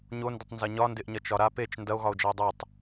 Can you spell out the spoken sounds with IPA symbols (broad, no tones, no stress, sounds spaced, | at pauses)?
ɲ o n d ɪ tˤ n z ɐ ɲ ɒ n d ɪ ʔ ɲ ɐ t͡ʃ ɒ ɾ a p e t͡ʃ n d ɐ o̯ ɣ ɒ o̯ d͡ʒ ɐ e̯ dˤ ɐ tˤ